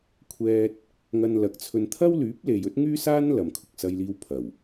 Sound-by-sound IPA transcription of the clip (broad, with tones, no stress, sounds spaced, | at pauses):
kʷʰ ɛː˧ t̚ | ŋ ɐ˧ n l ɐ˨ k̚ t͡sʰ ɵ˧ n t̪ʰ ɐ˥ w l yː˨˥ p̚ l e˨ j ɵ˥ t̚ ŋ yː˥ s aː˥ n l ɐ˨ m kʰ ʊ˨ k̚ s ɐ˧ j l iː˧ w pʰ ɐ˨˩ w